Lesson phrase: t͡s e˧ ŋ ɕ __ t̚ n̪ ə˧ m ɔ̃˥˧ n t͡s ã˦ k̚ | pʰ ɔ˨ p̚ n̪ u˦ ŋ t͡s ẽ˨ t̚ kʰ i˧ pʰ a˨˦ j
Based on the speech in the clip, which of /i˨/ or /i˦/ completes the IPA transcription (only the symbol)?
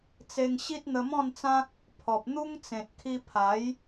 i˦